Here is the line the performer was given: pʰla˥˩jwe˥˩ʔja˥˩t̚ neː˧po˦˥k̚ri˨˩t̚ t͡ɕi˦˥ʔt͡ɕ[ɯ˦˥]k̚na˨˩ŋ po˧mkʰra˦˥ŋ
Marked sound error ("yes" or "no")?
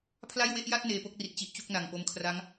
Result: yes